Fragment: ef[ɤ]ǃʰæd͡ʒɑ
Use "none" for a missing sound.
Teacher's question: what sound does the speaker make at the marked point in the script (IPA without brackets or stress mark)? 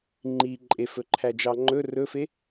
ɵ